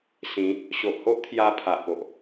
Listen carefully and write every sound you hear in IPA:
sĩ˨˦ | ɕo˨ʔho˦ʔt̪ʰja˧ pʰa˨ʔpo˨ʔ

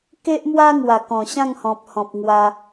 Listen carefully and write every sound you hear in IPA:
ke˦ʔmwa˦ŋwa˨˩ kɔ̃˨˩ɕã˥˧ŋhɔ̃˨p̚hɔ̃˨p̚ ŋwa˧

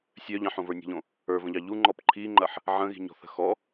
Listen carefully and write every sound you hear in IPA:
sʲœʎɑ̃ħ õvə˞nʲə̤ʎõ | ə˞və̃ʎɑ ʎuŋ͡ǃɔp ǃʰiŋ͡ǃɐħ | ʕə̃ɣi̤ɲɔ̤θə̤ xɔ

